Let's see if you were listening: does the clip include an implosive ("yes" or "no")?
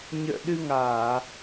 yes